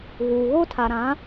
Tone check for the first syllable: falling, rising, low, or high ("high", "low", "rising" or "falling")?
low